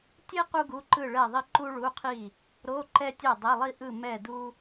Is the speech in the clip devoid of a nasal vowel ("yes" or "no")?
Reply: yes